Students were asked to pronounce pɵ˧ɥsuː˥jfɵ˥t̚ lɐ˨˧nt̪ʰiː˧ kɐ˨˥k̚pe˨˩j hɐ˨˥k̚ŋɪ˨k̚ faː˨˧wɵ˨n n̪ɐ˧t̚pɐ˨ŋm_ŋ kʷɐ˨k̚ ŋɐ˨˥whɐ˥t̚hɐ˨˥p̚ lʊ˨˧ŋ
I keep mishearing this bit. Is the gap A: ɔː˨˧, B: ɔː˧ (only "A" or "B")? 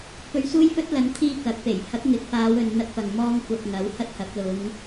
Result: B